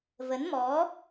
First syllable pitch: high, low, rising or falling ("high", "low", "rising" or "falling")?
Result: rising